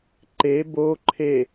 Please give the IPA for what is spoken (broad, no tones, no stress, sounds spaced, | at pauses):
ǃ e b o ǃʰ e